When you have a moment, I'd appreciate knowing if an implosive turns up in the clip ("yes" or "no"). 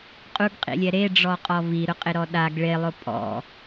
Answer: yes